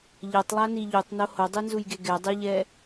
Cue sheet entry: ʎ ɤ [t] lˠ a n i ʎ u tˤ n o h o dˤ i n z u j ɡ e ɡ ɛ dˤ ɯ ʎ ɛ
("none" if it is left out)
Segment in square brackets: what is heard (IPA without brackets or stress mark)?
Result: tˤ